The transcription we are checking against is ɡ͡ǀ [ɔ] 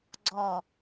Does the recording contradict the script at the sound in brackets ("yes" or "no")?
no